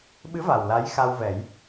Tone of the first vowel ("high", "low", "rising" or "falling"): rising